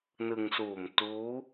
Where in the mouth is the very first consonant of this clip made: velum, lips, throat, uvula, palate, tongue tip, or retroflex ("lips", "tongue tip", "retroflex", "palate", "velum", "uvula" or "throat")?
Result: tongue tip